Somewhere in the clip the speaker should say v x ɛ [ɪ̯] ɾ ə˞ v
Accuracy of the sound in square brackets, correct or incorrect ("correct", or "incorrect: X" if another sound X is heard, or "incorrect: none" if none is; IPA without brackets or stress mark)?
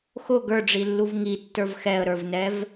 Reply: incorrect: ə̯